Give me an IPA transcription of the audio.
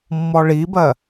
mː ɔ ɭ i b ɜ

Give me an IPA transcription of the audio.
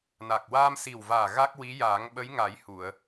n a˨˩ k̚ w aː˧ m s i˨˩ w v aː˨˩ ɣ a˦˥ k̚ w i˧˥ j aː˨˩˦ ŋ ɓ ə˧˥ j ŋ a˨˩˦ j h u˨˩˨ ə̯

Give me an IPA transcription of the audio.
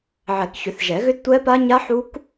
ʕ ɛ˨˩˦ k ç ʏ˨˩˦ θ ʒ ɛ˨˩˦ ɣ ʏ˦˥ d tʷ ɛ˦˥ p a˦˥ ɲ a˦˥ ħ u˦˥ k

